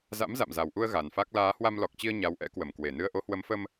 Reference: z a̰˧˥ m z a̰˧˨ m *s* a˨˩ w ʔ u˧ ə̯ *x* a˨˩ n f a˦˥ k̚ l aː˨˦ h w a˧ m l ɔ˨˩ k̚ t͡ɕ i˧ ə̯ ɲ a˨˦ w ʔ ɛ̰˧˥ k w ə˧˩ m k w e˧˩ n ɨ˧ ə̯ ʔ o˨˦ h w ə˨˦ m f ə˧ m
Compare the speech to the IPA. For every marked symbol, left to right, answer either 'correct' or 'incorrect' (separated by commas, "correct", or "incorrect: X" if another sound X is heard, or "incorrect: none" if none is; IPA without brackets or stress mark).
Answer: incorrect: z, incorrect: ɣ